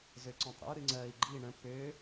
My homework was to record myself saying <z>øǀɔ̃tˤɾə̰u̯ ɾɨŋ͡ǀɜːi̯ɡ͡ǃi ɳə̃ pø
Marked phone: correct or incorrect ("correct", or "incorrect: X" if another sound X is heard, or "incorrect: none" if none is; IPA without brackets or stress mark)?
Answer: correct